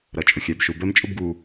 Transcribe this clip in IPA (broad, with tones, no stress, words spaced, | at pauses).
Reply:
ɾʌ˩t͡ʃʼʊ˩xʲæ˩bʃu˩ bɛ˥mt͡ʃʼʊ˥bɡu˩